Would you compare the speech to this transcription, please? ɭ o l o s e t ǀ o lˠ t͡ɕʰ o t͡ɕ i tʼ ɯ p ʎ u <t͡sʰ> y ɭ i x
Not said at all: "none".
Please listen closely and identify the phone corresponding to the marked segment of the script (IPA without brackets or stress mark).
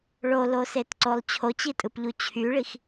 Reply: t͡ɕʰ